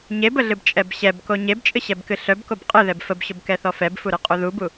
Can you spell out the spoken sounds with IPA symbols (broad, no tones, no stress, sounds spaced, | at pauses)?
ɲ e b ə ɮ ɨ b t͡ʃʼ ɛ b ɕ ɛ b k o ɲ e b t͡ʃʼ ɨ ɕ ɛ b k ɨ ɬ œ b k o b qʼ ɨ ð ɛ b f ə b ɕ ʊ b k ɛ θ ɔ f ɛ b f u ɾ ɨ qʼ u ð u b u